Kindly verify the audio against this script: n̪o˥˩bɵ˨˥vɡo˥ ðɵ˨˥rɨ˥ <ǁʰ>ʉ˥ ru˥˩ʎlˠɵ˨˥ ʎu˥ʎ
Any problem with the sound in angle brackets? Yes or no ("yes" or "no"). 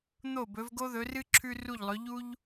no